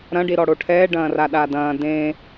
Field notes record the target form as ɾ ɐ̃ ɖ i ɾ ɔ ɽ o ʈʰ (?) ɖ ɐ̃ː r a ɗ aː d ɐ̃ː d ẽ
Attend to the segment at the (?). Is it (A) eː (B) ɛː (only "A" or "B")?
B